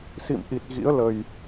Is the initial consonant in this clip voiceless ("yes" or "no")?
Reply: yes